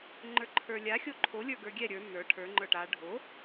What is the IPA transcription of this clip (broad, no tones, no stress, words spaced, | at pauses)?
ŋ͡ǃə˞ǃʰə˞lʲa xʲoǃʰo lʲə˞ɡə˞ɡʲɛ ɾʲə˞ nə˞ ʈʰə˞ ŋ͡ǃə˞ʈa ɖʱo